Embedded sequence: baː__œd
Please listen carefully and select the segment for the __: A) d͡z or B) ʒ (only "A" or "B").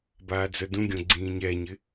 A